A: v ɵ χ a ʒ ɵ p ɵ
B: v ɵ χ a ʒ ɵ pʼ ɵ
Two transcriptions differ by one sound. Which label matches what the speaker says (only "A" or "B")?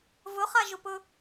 A